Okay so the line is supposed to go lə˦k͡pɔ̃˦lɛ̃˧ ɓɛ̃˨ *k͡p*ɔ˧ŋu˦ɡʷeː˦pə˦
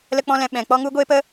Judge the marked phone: correct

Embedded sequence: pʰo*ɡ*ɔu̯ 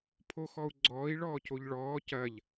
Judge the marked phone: incorrect: x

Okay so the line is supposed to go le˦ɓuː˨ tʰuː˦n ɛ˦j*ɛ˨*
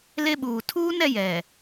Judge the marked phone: correct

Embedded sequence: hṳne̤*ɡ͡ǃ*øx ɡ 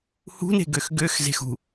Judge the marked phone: incorrect: ɡ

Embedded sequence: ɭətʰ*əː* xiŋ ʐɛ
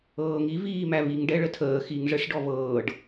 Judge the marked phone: correct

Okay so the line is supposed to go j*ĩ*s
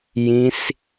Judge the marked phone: correct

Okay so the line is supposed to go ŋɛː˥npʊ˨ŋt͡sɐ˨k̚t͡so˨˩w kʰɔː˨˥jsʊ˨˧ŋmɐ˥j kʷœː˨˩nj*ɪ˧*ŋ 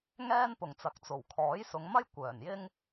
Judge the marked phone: incorrect: ɪ˥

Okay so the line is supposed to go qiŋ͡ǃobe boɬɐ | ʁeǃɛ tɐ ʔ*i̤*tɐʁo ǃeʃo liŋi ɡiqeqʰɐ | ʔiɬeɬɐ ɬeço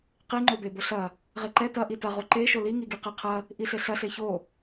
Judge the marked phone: incorrect: i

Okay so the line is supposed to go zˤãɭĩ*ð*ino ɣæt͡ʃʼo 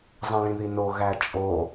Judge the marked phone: correct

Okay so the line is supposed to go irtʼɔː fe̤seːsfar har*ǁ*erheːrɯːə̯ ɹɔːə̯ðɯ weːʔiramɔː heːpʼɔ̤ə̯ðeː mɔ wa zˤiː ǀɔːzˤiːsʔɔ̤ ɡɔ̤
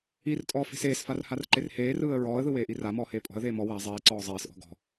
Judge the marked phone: incorrect: ǃ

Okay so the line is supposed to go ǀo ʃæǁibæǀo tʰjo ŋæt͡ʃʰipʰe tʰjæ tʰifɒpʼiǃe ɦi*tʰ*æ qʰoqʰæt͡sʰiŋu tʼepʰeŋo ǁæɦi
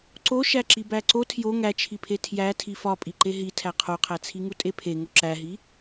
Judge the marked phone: correct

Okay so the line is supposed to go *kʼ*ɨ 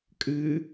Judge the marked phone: correct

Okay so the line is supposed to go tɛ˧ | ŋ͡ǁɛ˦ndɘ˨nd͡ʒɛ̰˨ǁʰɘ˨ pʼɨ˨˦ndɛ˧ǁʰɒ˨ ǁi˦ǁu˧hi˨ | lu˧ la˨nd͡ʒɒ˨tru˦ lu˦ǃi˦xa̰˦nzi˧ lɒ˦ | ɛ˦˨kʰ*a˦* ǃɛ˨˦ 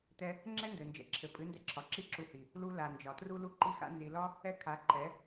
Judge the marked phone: incorrect: a˨˦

